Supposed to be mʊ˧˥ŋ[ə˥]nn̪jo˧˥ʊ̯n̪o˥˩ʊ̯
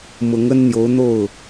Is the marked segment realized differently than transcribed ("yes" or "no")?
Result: no